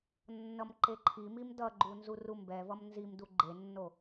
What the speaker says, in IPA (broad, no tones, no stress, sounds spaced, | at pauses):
nː ʌ m ǃ e ǃʰ i m i m d ʌ ɡ͡ǃ u n z u r u m b ɛ v ʌ m n z i m d u ɡ͡ǃ e nː o